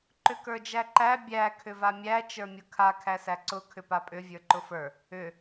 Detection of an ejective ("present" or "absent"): present